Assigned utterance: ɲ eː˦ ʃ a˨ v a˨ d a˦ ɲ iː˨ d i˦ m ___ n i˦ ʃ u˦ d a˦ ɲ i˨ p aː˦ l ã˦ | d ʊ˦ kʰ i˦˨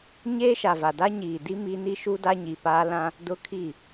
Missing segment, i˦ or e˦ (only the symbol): i˦